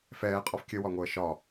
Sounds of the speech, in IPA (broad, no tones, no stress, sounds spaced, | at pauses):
f ɛː qʼ ɔ f kʲ ə w ɒ ŋʷ əː ʃ ɒ